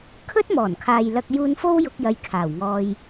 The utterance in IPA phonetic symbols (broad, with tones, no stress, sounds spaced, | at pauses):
kʰ ɵ˥ t̚ m ɔː˨˩ n kʰ aː˨ j l ɐ˧ k̚ j uː˧ n f o˥ w j ʊ˧ k̚ j ɐ˨˧ j kʰ aː˨˩ w ŋ ɔː˧ j